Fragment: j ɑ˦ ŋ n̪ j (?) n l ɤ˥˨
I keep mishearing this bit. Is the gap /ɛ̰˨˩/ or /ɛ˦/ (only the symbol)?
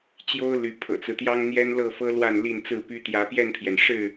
ɛ˦